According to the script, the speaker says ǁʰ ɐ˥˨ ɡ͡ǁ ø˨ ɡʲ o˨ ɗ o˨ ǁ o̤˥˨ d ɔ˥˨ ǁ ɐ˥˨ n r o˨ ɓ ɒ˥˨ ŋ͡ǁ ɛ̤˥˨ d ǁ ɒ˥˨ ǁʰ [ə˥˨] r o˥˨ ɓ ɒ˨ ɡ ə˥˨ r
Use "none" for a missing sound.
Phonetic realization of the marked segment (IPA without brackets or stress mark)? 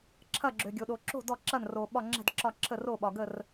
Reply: ə˥˨